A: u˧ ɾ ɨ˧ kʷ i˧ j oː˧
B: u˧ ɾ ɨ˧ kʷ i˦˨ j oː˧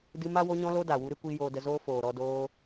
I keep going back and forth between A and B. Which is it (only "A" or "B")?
A